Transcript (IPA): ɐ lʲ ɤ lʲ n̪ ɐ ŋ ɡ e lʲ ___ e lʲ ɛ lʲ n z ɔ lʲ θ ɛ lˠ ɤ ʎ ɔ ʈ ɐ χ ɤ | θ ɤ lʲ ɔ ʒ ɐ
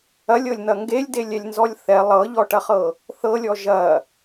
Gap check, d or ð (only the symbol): d